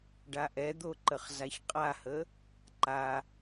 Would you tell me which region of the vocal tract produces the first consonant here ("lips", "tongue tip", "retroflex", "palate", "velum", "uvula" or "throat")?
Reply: retroflex